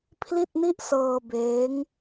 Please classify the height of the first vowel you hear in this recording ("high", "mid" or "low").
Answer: high